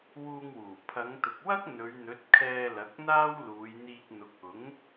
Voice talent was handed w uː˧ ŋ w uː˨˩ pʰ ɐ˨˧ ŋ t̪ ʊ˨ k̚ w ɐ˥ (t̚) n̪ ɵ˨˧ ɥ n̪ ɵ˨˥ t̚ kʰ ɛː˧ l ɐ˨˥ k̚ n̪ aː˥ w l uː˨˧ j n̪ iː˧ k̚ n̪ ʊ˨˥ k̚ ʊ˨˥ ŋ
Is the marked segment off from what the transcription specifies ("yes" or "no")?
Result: yes